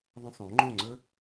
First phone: ðˤ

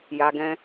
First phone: j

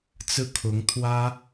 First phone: t͡s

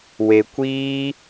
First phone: w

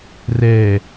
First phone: r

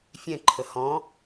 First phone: fʲ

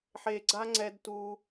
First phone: ħ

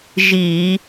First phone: ʒ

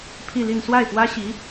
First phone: pʰ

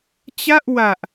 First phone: t͡ɕ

